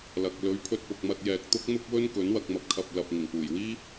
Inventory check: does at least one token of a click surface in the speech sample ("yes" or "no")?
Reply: no